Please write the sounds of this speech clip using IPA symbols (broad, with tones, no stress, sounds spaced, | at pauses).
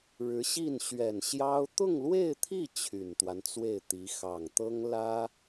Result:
ɻ ɻ̩˧˥ ɕ i˥˩ n ɕ ɥ ɛ˨˩ n ɕ j ɑ˥ ʊ̯ t̪ ʊ˥˧ ŋ l w e˥˧ ɪ̯ t̪ʰ i˥˩ t͡ɕʰ y˨˩ n t̪ w a˦ n t͡s w e˥˩ ɪ̯ t̪ i˧˥ x ɑ˨˩ ŋ t̪ ɤ˥ ŋ l ä˥